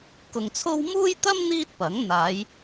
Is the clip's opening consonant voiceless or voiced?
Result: voiceless